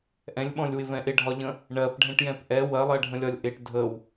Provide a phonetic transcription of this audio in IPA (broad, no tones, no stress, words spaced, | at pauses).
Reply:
ʔɛ̃lʲɓɔ̃lʲwɪvɛ̃ ʔɪɖʱɒʎə̃ | ɳɜpɖʱɛ̃ʈjɛ̃p ʔɛ wɜlˠɜɖʱə̃lʲɒlʲ ʔɪʈ dʱəw